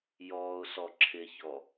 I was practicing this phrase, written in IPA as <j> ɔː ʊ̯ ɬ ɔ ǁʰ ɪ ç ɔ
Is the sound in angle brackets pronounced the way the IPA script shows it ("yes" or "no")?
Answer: yes